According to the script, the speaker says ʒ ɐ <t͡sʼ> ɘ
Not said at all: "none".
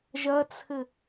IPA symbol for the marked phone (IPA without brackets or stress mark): t͡sʰ